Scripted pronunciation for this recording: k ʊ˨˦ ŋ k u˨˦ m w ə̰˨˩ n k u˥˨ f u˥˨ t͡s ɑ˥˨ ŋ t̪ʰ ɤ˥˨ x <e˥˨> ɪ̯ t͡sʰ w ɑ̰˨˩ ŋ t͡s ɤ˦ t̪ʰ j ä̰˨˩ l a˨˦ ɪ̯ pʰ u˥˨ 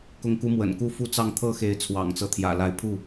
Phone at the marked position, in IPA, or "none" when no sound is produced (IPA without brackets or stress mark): e˨˦